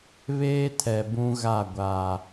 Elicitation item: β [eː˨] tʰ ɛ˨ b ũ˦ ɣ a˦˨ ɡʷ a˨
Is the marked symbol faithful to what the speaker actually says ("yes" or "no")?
no